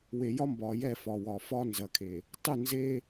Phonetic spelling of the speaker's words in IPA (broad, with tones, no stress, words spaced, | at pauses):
we˨jɒ˦ mbɒː˨jɛ˦˨ fɒ˨ wɒː˨fɒː˦ nzɐ˨kʰe˨ | tˤʊ˦˨nze˦